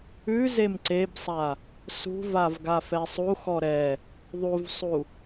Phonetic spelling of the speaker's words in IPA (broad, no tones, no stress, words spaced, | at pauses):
ʉ zemǀebsˤa | sṳvav ɡafɛsˤuxɔ ɾɛ | ðˤuvsˤu